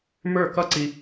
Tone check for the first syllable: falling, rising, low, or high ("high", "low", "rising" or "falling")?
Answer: falling